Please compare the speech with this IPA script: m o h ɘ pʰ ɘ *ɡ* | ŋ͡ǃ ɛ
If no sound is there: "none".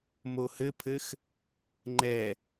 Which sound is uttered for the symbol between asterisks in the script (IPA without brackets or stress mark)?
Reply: x